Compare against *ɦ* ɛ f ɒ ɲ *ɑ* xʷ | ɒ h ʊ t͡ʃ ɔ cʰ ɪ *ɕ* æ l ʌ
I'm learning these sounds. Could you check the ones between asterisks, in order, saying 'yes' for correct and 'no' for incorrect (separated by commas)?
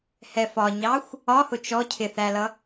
no, yes, no